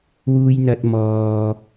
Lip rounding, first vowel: rounded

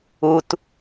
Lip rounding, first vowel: rounded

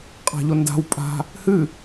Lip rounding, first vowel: unrounded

